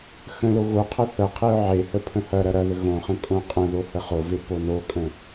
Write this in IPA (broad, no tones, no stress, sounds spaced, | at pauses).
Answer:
x ə̃ l o ɣ o qʰ ɐ θ ɐ qʰ e ʊ̯ ʕ e h ə pʰ ə̃ h ɐ ɾ ɐ ɾ ɐ ð ə ɣ õ χ ə̃ kʼ õ qʼ ə̃ ð o h ə χ o v e p o n o kʼ ə̃